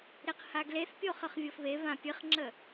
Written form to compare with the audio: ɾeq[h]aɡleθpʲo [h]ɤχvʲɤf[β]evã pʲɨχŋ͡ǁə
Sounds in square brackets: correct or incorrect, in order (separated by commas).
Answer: correct, incorrect, correct